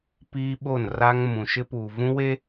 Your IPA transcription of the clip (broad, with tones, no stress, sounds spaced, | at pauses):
p i˦ ɓ o˦˨ n r a˦ ŋ m ũ˨ ʃ ɪ˦ p uː˨ v ũ˦ w e˦